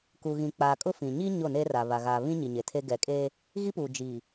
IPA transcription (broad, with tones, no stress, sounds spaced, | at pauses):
k u˨ ɣ ĩ˨ k͡p aː˨ kʼ ʊ˦ f ĩ˨ ɲ i˦ ɲ o˦˨ n eː˦ r a˨ β a˨ ɣ aː˨ β ĩ˦ ɲ i˨ ɲ e˨ tʰ e˦ ɡ ɛ˨ kʼ eː˦ | ɣ i˦ p uː˨ d͡ʒ iː˨